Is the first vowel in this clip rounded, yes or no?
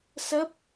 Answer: no